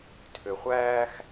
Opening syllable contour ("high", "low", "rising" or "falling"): low